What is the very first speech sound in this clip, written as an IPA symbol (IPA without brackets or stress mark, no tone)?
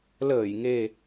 l